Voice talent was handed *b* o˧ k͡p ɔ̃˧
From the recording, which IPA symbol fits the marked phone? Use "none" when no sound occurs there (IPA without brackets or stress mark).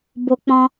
b